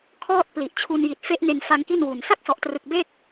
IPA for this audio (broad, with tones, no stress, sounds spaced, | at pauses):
kʰ ɔː˥˩ t̚ p l i˨˩ ʔ t͡ɕʰ u˧ n j i˨˩ t̚ f e˦˥ ʔ n e˧ n f a˧ ŋ k i˥˩ n w u˨˩ n s a˥˩ k̚ s ɔ˨˩ ʔ t r ɯ˨˩ k̚ b e˥˩ k̚